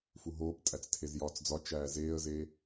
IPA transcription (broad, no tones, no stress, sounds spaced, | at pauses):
f u ɦ oː p tʼ æ t͡s tʰ e z j ɒː t͡s d͡z ɒ t͡ʃ æː z eː ə̯ z e